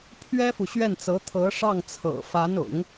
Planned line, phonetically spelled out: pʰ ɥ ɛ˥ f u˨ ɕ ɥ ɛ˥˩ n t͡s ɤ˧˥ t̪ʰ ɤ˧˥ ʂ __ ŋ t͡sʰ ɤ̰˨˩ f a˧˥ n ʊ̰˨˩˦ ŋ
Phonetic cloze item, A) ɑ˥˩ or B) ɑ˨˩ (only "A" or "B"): A